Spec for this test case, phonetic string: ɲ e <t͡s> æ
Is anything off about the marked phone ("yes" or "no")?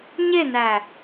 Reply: yes